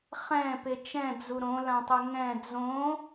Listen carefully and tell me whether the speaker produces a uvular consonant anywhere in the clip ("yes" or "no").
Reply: yes